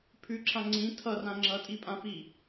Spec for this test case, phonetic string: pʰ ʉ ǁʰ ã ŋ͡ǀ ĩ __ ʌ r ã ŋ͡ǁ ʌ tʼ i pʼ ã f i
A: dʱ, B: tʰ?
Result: B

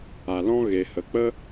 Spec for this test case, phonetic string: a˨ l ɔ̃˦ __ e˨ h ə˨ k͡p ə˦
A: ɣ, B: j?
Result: A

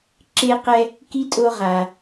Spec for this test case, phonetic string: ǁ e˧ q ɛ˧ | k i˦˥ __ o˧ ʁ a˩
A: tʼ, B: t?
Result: A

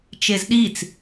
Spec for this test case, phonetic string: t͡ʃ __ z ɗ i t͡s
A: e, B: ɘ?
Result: A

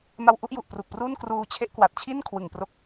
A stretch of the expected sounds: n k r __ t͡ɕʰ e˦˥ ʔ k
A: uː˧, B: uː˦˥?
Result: A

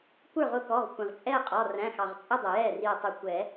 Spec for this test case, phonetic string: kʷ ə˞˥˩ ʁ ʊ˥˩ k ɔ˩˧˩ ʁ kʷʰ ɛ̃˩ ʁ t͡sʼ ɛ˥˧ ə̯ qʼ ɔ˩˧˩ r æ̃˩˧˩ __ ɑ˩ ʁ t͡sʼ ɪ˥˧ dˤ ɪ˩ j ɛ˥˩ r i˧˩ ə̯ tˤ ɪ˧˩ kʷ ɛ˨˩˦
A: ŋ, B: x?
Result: B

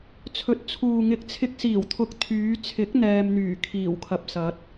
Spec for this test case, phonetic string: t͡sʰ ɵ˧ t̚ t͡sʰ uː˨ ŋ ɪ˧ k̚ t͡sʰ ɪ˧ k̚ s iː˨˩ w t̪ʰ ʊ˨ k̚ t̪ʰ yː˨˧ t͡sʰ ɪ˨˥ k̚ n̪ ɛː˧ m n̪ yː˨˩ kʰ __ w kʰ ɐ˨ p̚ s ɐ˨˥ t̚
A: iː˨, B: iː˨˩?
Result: B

